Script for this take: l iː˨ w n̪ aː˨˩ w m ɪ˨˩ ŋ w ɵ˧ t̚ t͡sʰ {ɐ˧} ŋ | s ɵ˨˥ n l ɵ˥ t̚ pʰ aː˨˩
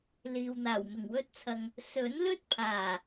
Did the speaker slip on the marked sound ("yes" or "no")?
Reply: yes